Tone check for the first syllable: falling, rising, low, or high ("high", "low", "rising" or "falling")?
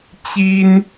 high